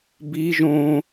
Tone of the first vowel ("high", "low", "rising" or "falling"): high